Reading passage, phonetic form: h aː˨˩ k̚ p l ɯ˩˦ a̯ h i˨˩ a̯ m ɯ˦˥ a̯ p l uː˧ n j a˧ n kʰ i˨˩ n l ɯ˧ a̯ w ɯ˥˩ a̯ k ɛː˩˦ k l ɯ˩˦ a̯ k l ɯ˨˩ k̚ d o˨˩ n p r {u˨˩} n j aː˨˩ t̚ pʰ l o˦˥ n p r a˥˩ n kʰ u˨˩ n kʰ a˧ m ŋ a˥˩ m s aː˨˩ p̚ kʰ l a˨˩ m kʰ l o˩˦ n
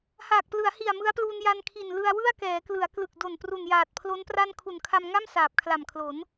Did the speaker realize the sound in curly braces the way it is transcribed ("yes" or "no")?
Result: yes